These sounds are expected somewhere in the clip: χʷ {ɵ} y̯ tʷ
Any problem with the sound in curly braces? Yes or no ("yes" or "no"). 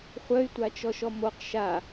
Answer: yes